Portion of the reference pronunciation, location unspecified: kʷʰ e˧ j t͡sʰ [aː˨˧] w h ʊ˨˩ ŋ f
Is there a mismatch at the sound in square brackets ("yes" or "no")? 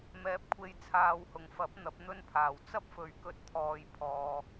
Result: no